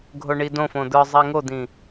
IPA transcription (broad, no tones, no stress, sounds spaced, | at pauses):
ɡʱ o ɳ i d õ f õ d̪ ə˞ zˤ i ŋ o d̪ ĩ